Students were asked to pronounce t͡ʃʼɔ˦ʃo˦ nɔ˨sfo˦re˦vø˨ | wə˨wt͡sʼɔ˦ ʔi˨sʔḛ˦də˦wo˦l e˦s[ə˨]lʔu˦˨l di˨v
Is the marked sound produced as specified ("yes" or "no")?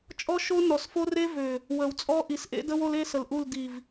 yes